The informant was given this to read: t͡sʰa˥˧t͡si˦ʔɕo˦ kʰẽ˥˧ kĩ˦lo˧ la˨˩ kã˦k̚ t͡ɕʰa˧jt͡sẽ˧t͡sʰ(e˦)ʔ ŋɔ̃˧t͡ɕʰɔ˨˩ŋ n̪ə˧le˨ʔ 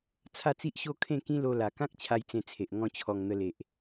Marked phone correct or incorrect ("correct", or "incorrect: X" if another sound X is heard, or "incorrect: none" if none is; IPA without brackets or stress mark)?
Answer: incorrect: e˨